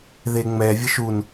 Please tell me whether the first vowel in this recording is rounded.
no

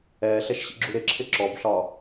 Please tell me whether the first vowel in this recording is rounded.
no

